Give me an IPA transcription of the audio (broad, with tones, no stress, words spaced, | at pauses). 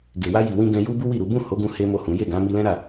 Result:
ɡe˨wa˧ji˨wĩ˧ ɡɛ̃˧ju˦ bu˦wi˦˨ɾu˨˦ bũ˦˨ ho˨˦ɡũ˧ he˦mo˦˨hũ˨˦ je˦˨ɡã˨˦ mi˧lɛ̃˦ɾa˦˨